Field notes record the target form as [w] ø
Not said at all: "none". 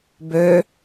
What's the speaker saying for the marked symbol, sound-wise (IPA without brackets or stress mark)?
b